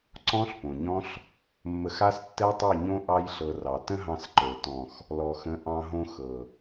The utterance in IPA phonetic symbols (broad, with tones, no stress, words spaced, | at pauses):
ǀɔ̃˦ɬpõ˨ɲɔ̃˦ɬ | mːə˧xa˦s tːɛ˦tˤɤ˦˨ɲõ˦ ʔɑ˧jɬɤ˨ rɑ˨ tə̃˦ɦɑ̃˧sǃə˞˨ tɔ̃˨x | lɔ˨xə̃˨˦ ʔɑ̃˧ɦõ˧xɤ˨